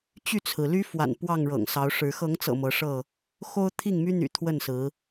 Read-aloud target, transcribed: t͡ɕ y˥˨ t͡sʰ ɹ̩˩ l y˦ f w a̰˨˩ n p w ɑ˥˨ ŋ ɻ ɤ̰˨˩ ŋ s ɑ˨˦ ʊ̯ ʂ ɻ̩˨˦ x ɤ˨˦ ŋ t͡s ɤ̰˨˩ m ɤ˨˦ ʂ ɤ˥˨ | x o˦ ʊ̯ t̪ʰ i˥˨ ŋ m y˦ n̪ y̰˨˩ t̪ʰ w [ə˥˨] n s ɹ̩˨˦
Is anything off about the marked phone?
no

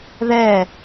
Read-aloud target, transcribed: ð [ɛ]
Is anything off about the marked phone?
no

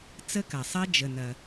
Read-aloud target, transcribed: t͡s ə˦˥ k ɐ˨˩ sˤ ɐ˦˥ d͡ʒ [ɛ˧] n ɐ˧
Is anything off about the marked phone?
yes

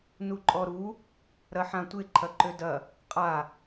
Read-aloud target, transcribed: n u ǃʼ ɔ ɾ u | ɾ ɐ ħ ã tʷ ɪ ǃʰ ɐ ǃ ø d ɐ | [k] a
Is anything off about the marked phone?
yes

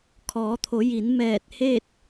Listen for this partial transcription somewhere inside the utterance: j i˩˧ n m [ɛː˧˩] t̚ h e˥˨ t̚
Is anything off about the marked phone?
no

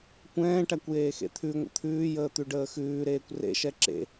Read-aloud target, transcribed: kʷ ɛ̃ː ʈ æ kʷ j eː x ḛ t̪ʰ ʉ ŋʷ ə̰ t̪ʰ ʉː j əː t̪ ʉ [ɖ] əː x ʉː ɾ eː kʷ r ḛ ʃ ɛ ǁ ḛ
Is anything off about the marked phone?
no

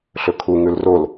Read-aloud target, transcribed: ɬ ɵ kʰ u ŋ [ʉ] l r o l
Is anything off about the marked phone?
no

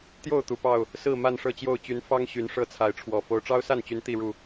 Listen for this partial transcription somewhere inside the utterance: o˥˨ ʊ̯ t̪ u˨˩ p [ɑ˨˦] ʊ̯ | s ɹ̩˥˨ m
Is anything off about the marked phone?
yes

